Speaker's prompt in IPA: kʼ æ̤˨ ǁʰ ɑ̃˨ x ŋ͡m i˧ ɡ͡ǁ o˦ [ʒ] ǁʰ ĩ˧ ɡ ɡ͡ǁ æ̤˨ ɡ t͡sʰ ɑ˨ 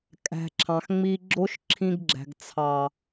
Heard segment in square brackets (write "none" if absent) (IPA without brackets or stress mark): ʃ